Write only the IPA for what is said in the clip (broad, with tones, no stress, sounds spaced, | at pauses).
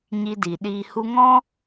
ɲ i˧ d i˨ ɗ iː˧ h u˦ ŋ ɔ̃˦